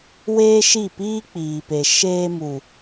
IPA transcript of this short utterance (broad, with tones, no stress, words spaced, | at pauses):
weː˦ʃi˦˨piː˦ k͡piː˨pe˨ ʃeː˧mu˨